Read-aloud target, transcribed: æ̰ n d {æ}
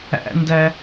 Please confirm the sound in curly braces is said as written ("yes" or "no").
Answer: yes